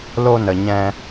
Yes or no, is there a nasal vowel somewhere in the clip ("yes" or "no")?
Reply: yes